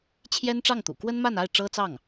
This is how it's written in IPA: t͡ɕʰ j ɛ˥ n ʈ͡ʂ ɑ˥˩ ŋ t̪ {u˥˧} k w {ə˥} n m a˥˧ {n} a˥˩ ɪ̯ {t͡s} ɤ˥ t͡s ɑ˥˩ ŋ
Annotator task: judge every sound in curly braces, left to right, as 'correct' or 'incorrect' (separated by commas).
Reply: incorrect, correct, correct, incorrect